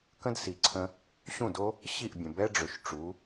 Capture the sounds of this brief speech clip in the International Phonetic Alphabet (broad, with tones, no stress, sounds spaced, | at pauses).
k ə̃˥ d s i˩ ǀʰ ə̃˧ | ɕ ũ˥˩ d o˥ | ɕ i˥˩ ʔ bʲ ə̃˩ b ɛ˥ ɖ͡ʐ ø˩ ʃ ʈ͡ʂ u˩˥